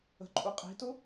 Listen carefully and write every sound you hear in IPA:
ə̤ ǃʼ u qʼ i̤ t ʊ

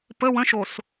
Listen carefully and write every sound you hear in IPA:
p ə w ə̃ ʃ o s

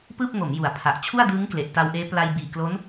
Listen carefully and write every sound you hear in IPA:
p ɯː˥˩ p̚ ŋ o˩˦ m j u˨˩ a̯ pʰ a˨˩ ʔ t͡ɕʰ u˥˩ a̯ d ɯː˦˥ ŋ k l e˨˩ ʔ t a˧ w ʔ eː˦˥ p l a˧ j b iː˨˩ k l o˦˥ n

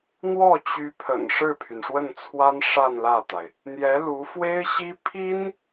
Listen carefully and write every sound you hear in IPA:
n̪ w ɔ˥˩ t͡ɕ y˧˥ pʰ ə̰˨˩ n ʂ ɻ̩˥˩ pʰ y˩ n ʂ w ə˥˩ n t͡sʰ w a˥ n ʂ a˥˧ n l ä˥˩ t̪ a˩ ɪ̯ | n̪ j ɛ˧˥ l u˧˥ f w e˥ ɪ̯ ɕ i˥ pʰ i˥ n

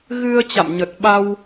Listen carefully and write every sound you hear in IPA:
ɣ ɨ˧ ə̯ t͡ɕ a̰˧˨ m ɲ ə˨˩ t̚ ɓ a˧ w

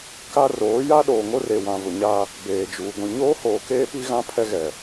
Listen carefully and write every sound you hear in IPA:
k a˦ r oː˨˦ j a˦ ɗ oː˨ ŋ o˦ r e˨ w ã˨ v ʊ˨ ɲ a˦ | b eː˨ d͡ʒ uː˨ ɡʷ ĩ˨ ɲ oː˦ h oː˨ k eː˦ p i˦ ɣ ã˦ pʰ ɛ˦ ɣ ɛ˨

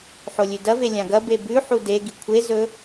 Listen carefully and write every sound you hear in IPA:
ħ o lʲ ʉ d ɐ v e lʲ ã ɡ ɐ b e b ʉ ħ u d e ɡ i kʷʰ e z ɵ

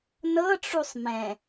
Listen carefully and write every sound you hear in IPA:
n ɤ ʈ͡ʂ u sˤ m ɛ̃

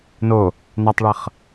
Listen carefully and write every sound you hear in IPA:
n o | n a tˤ ɭ ʌ χ

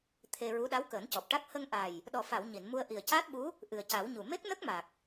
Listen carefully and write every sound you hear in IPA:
t̪ʰ e˧ ɹ u˧˥ ɗ a˧˥ w k əː˨˩˦ n c ɔ˨˩ p̚ ʈ a˦˥ k̚ h ə˧ ŋ ʔ a˨˩ j | ɗ ɔ˨˩ f a˨˩˨ w ɲ i˨˩˨ n m u˧ ə̯ ʔ i˨˩ ə̯ c aː˦˥ t̚ ɓ u˧˥ | ʔ ɨ˨˩ ə̯ c a˨˩˦ w ɲ u˨˩ m e˦˥ k̚ n ə˦˥ k̚ m a˨˩ k̚

